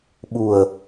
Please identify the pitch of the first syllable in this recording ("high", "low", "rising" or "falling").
low